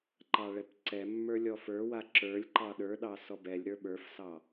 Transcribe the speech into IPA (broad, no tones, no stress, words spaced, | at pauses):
ǃɑɭɛpǀɛmːə˞ lʲɔfə˞wa ǁə˞lʲ ǃɑɗə˞ɗɑ sɔbɛlʲɾə˞ ɓə˞fsɑ